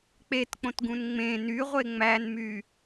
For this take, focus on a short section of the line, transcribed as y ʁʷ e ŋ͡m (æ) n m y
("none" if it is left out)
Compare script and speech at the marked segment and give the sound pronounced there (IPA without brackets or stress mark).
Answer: æ